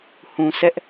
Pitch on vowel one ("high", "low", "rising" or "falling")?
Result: low